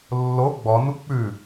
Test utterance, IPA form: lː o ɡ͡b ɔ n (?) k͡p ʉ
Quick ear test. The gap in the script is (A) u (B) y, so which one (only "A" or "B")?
A